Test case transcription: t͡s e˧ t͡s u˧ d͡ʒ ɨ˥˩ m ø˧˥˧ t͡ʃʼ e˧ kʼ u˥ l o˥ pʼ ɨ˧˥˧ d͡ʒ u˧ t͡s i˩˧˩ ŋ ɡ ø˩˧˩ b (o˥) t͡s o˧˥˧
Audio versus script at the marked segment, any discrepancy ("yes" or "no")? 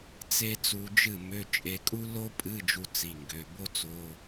no